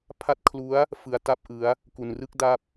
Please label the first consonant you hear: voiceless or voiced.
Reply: voiceless